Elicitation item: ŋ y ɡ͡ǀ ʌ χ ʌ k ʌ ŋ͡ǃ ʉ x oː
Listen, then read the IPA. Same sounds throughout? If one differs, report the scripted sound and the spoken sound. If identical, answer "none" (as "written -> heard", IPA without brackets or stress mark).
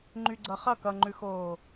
ŋ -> ŋ͡ǃ